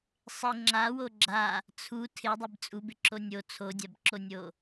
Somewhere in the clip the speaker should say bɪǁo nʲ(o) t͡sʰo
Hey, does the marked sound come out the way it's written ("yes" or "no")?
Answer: yes